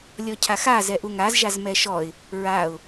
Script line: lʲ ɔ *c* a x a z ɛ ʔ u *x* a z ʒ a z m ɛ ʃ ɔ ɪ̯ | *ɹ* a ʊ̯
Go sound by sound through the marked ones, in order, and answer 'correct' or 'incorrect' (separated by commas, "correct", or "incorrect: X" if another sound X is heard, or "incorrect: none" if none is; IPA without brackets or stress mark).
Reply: incorrect: cʰ, incorrect: ŋ, correct